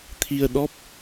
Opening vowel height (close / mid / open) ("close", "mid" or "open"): close